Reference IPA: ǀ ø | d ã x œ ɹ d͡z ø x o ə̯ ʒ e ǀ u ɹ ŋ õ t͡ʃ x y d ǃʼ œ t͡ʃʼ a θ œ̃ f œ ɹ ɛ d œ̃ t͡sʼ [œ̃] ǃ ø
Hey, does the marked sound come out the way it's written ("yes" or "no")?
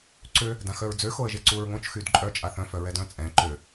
no